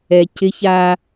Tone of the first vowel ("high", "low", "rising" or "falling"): low